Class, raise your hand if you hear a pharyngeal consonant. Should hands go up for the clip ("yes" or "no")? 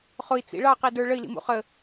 no